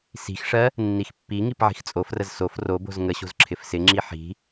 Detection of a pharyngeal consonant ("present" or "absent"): present